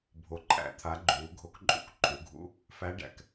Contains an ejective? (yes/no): yes